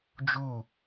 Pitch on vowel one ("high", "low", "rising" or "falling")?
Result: falling